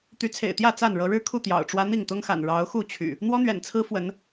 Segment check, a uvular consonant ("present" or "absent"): absent